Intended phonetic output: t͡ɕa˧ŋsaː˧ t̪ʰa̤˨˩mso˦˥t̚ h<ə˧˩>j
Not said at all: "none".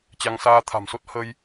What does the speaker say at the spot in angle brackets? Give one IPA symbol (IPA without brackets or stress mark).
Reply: ə˧